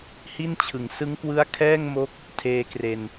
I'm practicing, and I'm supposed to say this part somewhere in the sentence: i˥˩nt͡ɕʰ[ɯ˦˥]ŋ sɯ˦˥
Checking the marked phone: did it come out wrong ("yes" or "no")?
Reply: yes